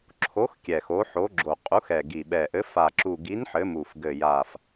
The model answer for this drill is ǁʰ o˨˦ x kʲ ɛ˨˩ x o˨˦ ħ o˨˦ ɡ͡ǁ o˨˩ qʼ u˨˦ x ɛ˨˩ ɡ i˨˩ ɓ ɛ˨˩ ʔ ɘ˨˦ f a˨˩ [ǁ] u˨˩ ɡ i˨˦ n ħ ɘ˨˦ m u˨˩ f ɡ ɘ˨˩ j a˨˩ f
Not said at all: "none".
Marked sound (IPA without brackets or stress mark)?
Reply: ǁ